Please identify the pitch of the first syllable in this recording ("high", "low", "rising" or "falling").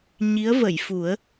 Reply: rising